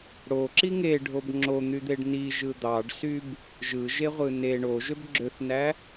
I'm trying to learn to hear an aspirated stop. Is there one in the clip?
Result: no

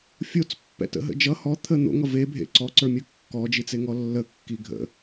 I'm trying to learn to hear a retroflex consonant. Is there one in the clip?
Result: no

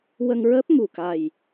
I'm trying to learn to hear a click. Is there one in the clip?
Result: no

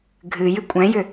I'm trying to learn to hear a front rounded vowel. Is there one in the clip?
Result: yes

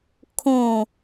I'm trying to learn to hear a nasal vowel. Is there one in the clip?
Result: yes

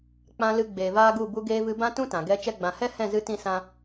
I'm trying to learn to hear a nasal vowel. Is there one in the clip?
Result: yes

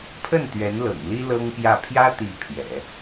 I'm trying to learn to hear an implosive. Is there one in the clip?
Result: no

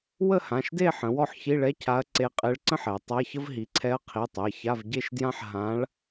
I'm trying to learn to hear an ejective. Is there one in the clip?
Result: yes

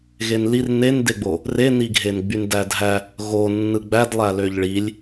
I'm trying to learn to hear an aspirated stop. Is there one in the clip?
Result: no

